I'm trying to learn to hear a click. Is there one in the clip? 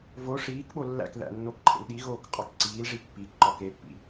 yes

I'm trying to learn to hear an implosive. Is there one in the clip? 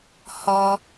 no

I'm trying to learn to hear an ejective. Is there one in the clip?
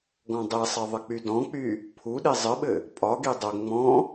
yes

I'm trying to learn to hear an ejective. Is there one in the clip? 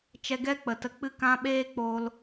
no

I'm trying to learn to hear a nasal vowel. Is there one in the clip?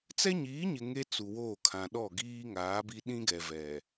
yes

